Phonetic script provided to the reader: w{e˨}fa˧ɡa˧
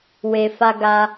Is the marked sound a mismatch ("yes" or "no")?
no